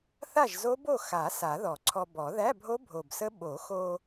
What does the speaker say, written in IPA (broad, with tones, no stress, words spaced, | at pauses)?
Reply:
θa˥˨ʒzo˦˥bo˥˨ xa˨˩˦ sa˨˩˦ðɔ˨˩˦ǀʰɔ˧ bɔ˨˩˦ ðæ˧˥˧bʱo˦˥ bʱo˨˩bsə˦˥ ɓo˨˩˦xo˧